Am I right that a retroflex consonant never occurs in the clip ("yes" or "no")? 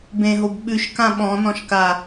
yes